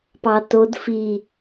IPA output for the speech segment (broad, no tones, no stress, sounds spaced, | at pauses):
p ɑ t o d f i